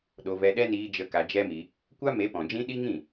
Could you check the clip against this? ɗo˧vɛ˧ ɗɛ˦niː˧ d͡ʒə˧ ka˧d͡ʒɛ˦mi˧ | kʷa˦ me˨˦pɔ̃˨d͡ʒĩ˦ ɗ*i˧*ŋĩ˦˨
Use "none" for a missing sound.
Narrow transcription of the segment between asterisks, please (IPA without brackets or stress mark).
i˦